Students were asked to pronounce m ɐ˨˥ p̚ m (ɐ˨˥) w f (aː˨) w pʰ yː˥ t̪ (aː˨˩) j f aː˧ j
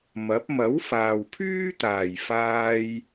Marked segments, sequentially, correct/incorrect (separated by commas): correct, correct, correct